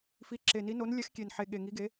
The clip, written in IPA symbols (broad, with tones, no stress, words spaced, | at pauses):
fi˨˦ ǁe˨˩ni˨˦no˨˦n lʲɛ˨˦xkʲe˨˩nħe˨˩ɠe˨˩ ŋi˨˦ɡe˨˦